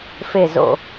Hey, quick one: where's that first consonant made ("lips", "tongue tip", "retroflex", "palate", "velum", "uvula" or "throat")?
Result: lips